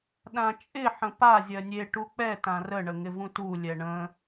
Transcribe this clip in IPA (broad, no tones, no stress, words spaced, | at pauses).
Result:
ɗãt͡ʃʼɪ ħə̃pa zʲɜnʲe ʈuk͡pɛ tãrə ɳəŋɪvũtu lʲɛɳə̃